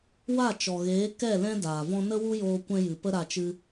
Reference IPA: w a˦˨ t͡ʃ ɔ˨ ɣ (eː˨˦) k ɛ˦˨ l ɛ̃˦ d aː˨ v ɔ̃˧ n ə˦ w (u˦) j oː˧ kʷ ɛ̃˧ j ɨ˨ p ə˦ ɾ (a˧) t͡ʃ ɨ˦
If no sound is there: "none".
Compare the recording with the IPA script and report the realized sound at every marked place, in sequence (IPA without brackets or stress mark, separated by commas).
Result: eː˨˦, u˦, a˧